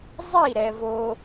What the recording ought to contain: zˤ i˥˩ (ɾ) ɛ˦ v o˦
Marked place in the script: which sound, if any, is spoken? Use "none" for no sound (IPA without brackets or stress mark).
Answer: ɾ